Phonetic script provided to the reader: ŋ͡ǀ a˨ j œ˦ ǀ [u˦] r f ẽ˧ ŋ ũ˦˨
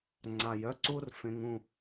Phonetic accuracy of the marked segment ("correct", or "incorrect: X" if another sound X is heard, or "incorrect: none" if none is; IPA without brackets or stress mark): correct